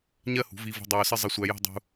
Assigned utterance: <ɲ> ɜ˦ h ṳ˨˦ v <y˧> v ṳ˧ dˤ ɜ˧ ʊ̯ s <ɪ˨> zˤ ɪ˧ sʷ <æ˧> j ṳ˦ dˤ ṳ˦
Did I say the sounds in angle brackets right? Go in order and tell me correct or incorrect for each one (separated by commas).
correct, incorrect, incorrect, correct